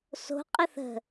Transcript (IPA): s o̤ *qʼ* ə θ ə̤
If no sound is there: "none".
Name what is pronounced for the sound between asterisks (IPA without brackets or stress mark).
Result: qʼ